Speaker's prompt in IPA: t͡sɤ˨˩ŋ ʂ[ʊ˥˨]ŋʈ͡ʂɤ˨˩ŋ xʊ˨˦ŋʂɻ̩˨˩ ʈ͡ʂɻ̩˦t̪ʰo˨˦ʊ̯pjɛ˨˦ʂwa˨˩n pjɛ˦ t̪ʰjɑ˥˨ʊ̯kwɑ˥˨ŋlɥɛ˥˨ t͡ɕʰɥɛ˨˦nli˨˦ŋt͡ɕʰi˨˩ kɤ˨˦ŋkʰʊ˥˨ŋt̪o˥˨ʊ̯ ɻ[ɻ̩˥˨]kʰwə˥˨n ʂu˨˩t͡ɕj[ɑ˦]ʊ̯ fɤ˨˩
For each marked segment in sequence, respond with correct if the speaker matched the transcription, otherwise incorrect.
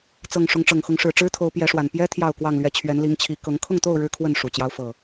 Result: incorrect: ʊ˨˦, incorrect: ɻ̩˦, correct

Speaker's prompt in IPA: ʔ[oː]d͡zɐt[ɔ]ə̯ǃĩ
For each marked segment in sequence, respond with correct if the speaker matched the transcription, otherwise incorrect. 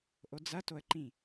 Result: incorrect: o, incorrect: o

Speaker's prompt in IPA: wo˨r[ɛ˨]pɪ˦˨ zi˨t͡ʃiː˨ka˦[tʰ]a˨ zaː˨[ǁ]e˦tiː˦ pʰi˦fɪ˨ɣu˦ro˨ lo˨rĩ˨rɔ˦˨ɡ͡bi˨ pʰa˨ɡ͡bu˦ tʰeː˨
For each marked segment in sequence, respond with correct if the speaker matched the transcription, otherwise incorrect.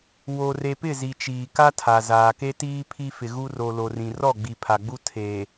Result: incorrect: e˨, correct, incorrect: k

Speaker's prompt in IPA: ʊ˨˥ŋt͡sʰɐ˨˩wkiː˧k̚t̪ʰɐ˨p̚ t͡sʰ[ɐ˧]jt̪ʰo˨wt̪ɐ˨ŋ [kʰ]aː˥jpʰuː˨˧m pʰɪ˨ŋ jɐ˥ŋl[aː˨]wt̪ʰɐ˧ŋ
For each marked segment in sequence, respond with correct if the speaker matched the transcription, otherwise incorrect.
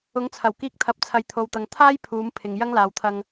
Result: incorrect: ɐ˨, incorrect: t̪ʰ, correct

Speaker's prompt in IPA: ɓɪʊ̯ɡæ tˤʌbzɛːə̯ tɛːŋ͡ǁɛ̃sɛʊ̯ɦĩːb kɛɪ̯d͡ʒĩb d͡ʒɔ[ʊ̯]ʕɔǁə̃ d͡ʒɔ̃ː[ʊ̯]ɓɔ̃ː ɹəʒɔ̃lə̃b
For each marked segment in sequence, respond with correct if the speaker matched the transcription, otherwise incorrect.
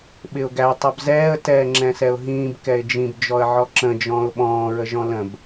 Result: incorrect: ə̯, correct

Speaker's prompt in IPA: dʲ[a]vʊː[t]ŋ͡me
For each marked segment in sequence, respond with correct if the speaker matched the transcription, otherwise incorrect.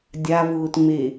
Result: correct, correct

